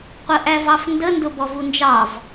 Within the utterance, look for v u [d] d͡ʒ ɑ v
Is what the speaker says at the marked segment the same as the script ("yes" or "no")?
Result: no